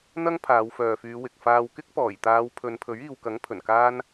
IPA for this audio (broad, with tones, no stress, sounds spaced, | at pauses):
n̪ ɐ˥ ŋ pʰ aː˨˧ w f œː˨ f yː˨˧ w ɪ˨ k̚ f aː˧ w k ɪ˥ k̚ p ɔː˨˩ j t̪ aː˨˧ w pʰ ɵ˨˧ n pʰ ɵ˨˥ ɥ iː˨ w k ɐ˨˥ ŋ pʰ ɵ˨˩ n k aː˥ n